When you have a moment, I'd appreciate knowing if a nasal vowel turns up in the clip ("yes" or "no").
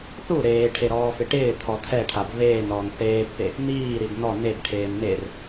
no